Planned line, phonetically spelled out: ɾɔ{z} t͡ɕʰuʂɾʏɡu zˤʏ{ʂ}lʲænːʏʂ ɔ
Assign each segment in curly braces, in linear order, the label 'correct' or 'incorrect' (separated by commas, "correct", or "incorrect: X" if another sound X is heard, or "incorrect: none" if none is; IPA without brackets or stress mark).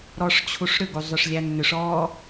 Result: incorrect: ʂ, correct